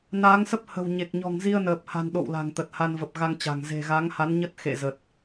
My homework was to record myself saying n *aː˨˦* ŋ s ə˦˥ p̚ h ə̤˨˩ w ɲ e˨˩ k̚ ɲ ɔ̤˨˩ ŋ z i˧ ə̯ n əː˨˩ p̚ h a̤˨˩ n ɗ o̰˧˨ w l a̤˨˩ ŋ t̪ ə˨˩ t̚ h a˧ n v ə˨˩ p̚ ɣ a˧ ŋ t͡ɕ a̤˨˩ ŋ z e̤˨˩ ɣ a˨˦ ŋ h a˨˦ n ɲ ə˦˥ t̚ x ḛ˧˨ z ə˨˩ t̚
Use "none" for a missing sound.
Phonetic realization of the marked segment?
aː˨˦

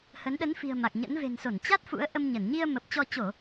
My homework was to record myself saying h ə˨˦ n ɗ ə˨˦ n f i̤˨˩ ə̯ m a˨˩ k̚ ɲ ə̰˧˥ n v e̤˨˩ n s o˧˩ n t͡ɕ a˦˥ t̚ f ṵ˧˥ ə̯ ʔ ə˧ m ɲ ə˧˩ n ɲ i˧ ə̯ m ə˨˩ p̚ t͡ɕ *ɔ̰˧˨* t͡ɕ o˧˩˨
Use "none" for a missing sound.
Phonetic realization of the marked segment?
ɔ˧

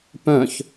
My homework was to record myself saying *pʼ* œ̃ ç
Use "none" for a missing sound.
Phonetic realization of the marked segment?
p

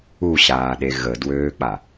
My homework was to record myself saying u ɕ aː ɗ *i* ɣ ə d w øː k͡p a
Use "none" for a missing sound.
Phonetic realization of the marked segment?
e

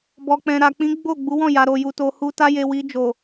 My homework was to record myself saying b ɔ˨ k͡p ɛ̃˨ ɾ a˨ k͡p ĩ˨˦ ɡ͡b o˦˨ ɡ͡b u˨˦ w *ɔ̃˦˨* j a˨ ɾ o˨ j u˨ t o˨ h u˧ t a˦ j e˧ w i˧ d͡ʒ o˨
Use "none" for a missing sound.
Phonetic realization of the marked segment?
ɔ̃˦˨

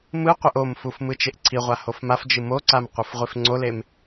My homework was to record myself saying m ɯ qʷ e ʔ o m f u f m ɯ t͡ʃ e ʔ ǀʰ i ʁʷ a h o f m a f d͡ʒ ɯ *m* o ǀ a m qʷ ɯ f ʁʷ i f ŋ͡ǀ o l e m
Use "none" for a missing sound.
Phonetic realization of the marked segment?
m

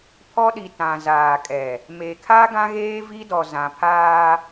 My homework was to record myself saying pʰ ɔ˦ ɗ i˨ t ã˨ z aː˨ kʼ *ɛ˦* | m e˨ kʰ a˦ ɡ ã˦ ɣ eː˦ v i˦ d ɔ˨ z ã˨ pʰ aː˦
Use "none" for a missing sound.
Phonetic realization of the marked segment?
ɛ˨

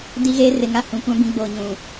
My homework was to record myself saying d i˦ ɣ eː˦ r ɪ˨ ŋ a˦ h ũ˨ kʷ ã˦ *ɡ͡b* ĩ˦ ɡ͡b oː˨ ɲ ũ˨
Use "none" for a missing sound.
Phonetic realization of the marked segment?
b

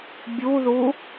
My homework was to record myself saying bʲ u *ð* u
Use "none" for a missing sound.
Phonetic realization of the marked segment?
ð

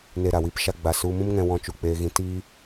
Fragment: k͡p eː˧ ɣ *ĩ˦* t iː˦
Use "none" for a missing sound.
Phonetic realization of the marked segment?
ĩ˧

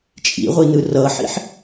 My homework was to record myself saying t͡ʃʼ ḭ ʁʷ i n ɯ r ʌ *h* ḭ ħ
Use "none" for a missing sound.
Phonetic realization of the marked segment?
ħ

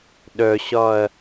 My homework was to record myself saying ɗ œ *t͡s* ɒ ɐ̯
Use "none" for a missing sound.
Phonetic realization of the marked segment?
ɕ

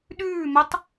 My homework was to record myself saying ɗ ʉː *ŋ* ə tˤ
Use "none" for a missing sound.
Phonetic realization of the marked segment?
m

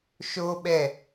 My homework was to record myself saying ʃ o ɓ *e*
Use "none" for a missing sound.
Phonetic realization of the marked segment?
ɛ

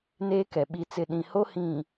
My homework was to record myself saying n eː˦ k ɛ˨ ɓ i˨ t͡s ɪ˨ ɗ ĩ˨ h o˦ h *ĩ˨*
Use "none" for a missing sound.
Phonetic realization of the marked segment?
ĩ˨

